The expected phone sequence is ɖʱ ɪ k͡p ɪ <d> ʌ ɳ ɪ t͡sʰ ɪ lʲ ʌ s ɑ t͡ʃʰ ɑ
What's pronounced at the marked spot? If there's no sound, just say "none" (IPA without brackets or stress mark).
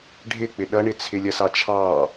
ɗ